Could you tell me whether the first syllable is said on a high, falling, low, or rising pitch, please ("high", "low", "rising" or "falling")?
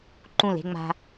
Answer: falling